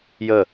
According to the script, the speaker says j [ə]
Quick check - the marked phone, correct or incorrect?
correct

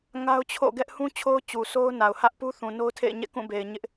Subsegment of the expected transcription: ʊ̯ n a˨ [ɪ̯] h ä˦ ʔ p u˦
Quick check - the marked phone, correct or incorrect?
incorrect: ʊ̯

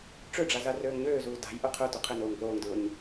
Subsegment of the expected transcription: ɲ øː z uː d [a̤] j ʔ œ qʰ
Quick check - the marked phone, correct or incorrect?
correct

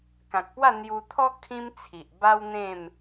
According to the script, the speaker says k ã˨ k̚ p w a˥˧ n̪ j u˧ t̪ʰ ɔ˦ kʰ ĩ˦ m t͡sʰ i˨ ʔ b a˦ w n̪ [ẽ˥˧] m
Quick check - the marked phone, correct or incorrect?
correct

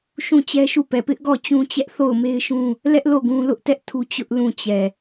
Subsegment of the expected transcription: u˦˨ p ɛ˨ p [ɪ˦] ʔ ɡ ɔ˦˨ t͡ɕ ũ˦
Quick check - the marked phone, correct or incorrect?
correct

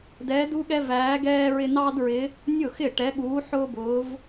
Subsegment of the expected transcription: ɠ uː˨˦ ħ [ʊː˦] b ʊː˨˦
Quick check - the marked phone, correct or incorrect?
correct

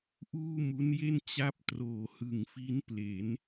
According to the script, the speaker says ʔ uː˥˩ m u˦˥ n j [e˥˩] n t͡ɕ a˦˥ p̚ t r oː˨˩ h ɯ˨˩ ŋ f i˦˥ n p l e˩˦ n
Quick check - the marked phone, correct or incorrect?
correct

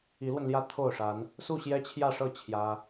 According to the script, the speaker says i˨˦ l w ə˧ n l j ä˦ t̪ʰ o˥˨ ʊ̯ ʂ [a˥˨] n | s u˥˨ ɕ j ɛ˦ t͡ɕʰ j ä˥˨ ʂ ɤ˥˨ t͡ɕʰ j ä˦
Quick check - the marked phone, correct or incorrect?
incorrect: a˨˦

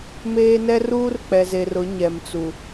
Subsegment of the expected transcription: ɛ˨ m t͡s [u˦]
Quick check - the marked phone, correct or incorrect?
incorrect: u˨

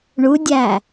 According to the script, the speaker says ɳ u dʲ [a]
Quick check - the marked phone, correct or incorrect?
incorrect: æ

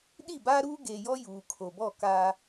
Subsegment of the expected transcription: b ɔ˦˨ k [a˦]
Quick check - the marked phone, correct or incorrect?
correct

